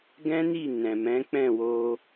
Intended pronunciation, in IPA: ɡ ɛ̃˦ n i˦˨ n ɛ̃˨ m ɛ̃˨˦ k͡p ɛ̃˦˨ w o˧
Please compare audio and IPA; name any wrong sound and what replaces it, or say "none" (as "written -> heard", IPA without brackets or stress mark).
none